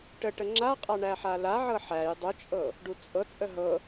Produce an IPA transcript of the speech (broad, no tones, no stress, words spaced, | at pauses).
ʈəʈə ŋ͡ǁaqʼa ɳæħalaʕɤ ħæj dˤut͡ʃʼɤ | ɖut͡sʼɤt͡sʼə ɦɤ